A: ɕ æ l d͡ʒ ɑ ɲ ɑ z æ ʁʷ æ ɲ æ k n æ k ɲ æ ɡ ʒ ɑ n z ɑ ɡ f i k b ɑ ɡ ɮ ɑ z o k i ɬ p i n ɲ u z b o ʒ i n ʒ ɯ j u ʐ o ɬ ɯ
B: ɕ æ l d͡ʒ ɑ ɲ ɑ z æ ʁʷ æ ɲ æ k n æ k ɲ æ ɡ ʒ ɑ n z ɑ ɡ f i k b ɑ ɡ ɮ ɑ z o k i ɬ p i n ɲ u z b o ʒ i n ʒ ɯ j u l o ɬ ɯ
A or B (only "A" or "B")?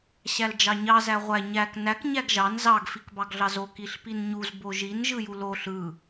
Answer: B